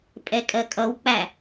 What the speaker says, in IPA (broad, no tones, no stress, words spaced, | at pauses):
pʼɛkʼɜkʼʌwk͡pæ